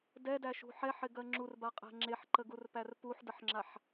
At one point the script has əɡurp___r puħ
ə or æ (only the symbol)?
æ